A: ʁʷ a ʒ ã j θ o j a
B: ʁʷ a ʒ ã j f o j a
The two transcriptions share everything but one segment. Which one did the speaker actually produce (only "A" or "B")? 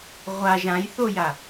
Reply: A